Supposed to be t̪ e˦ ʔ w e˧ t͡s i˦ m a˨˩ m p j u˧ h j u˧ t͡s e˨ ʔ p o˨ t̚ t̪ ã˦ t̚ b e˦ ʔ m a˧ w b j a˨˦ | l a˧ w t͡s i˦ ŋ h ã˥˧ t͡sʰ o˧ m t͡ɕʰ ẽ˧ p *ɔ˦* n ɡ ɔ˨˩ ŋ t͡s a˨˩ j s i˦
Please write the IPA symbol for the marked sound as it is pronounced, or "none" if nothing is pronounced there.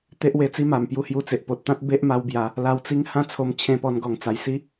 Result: ɔ˧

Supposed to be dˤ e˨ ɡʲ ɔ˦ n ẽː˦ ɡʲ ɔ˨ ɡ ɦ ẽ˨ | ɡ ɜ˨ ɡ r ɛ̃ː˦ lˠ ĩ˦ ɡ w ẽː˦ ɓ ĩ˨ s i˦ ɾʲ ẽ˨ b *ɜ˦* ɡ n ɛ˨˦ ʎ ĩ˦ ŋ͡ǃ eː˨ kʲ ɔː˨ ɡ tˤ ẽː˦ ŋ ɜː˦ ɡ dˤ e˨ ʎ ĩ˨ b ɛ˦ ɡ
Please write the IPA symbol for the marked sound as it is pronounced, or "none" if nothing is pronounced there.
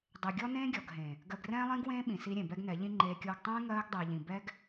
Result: ɛ˦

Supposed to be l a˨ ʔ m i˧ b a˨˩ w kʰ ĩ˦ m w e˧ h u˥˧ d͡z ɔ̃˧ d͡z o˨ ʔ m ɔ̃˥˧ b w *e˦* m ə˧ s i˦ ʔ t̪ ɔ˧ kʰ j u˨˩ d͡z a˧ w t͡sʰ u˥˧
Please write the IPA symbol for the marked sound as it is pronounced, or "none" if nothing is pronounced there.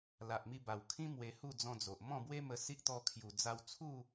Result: e˦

